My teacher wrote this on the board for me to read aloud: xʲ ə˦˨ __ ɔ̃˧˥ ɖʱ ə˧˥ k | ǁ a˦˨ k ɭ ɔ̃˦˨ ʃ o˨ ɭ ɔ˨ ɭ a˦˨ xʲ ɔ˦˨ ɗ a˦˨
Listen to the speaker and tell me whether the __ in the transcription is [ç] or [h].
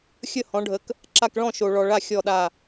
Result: h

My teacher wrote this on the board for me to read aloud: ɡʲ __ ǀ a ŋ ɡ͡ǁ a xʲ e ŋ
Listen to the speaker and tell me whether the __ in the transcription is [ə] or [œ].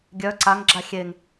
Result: œ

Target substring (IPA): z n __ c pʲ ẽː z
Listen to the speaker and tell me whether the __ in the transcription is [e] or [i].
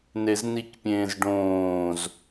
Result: i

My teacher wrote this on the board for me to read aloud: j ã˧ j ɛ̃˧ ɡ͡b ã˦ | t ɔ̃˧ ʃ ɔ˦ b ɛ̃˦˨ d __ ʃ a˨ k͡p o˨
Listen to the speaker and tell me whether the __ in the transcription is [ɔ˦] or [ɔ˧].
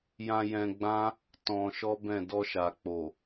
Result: ɔ˧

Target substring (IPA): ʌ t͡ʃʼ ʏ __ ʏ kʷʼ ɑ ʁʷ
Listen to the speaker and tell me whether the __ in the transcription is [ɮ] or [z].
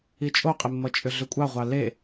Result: ɮ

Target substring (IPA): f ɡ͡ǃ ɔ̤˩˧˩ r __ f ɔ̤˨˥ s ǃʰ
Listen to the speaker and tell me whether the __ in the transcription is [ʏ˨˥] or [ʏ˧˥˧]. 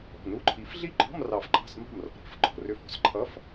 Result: ʏ˧˥˧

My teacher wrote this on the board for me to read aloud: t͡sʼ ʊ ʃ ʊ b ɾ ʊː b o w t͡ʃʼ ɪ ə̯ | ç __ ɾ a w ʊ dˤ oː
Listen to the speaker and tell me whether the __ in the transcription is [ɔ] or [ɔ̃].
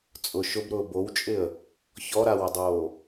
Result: ɔ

